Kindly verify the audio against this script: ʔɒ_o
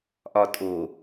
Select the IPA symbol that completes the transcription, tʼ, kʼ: tʼ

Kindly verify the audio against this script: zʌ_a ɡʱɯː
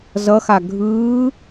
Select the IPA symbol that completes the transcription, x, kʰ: x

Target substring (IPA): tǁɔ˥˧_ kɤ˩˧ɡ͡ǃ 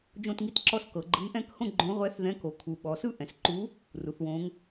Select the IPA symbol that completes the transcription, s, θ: s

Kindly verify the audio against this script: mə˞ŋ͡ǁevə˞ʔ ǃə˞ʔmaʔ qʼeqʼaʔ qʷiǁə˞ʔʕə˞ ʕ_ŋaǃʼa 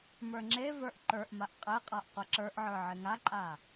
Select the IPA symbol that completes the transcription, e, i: e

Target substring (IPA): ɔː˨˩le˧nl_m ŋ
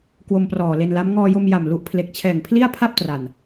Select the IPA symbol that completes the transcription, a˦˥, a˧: a˦˥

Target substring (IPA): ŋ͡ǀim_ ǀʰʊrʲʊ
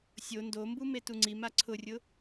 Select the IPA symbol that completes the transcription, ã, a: a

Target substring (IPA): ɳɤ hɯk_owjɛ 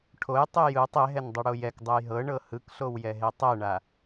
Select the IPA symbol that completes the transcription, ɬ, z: ɬ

